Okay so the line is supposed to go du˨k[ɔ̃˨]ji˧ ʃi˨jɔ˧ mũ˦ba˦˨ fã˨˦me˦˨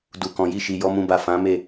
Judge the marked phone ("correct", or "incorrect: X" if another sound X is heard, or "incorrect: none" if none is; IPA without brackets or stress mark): correct